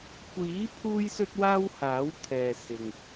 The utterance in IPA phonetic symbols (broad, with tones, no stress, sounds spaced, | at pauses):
kʷ iː˨˥ pʰ uː˥ j s ɵ˥ t̚ w aː˥ w h aː˨˥ w t̪ʰ ɛː˨ s ɪ˨ ŋ